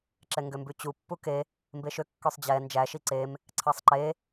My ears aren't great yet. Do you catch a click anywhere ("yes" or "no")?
yes